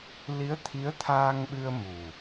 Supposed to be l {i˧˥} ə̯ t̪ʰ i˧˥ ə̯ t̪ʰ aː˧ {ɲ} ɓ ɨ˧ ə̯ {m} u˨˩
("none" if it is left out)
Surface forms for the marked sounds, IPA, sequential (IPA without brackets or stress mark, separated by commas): i˧˥, ŋ, m